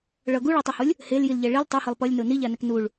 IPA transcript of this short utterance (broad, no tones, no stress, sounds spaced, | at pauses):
ɭ ʌ ɡ u ɭ a tˤ u h o lʲ | h e l j i l ʎ ɛ ɭ i l tˤ u h ɯ lˠ p ʌ lʲ n o n i ʎ a n ɛ k n u ɭ